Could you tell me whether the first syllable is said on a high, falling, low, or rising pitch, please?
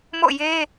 falling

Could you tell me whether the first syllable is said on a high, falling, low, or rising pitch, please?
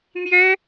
high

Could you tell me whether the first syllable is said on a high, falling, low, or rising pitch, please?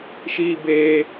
high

